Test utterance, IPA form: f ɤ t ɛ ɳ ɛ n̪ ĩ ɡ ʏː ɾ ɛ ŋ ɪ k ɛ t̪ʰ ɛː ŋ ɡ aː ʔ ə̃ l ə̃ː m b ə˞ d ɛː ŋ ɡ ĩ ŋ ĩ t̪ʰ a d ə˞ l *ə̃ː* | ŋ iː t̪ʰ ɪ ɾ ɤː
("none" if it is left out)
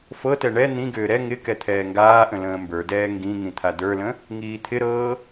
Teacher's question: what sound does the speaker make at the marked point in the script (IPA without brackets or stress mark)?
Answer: ə̃